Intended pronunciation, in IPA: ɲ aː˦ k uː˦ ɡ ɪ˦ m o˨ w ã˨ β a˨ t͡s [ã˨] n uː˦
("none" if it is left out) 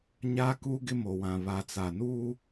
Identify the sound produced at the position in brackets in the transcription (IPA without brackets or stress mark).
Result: a˨